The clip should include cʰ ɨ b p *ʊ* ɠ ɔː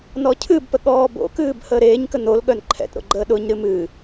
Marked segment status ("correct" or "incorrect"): incorrect